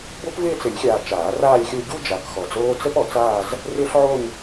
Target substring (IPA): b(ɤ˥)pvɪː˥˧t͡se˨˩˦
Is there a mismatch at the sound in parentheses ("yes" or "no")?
yes